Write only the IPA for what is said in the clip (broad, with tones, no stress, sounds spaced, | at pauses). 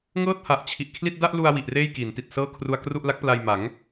ŋ ɤː˥˩ t̚ h a˨˩ ʔ t͡ɕʰ i˨˩ ʔ kʰ l i˥˩ t̚ d a˥˩ ʔ l u˧ a̯ w i˨˩ ʔ r eː˥˩ j k i˩˦ n t i˨˩ t̚ s ɤː˥˩ kʰ r u˧ a̯ k r u˥˩ ʔ l a˦˥ k̚ p l a˧ j m a˩˦ ŋ